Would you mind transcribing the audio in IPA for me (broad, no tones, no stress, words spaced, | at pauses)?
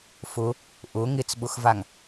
fʊ | ʔʊ ŋɪt͡sɓʊxvaŋ